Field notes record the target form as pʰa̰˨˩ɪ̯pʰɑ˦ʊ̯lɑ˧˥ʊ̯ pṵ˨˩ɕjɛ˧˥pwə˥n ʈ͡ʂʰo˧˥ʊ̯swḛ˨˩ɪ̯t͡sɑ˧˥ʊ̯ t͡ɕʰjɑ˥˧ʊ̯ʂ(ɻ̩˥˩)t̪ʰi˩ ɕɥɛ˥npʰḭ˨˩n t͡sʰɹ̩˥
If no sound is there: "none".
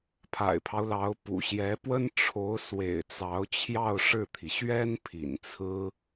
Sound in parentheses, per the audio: ɻ̩˥˩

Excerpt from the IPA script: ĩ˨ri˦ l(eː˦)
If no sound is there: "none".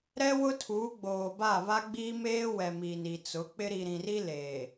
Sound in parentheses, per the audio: eː˨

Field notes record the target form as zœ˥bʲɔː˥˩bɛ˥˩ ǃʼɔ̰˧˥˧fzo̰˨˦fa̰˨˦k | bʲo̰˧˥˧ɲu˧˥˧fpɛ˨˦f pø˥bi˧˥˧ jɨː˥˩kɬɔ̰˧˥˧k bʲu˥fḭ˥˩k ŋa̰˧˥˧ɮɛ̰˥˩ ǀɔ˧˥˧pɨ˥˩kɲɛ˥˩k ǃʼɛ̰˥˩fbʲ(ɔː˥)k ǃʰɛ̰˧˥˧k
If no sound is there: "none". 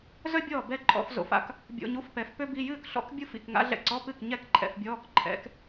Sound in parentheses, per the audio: ɔː˧˥˧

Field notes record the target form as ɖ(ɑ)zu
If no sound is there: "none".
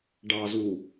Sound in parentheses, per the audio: ɑ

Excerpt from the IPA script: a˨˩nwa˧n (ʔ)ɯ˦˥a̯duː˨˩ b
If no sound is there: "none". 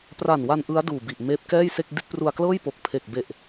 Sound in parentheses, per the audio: ʔ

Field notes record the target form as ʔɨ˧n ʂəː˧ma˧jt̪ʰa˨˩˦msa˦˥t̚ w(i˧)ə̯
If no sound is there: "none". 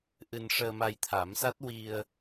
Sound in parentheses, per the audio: i˧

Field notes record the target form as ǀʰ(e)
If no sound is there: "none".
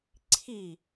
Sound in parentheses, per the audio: i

